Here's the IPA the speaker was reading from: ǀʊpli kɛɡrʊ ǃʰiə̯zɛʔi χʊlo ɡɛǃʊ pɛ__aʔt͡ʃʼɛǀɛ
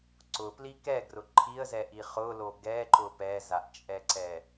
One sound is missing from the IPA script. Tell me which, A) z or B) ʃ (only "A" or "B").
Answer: A